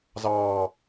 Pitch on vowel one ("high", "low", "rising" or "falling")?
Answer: low